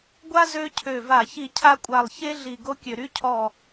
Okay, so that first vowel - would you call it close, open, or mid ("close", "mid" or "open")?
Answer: open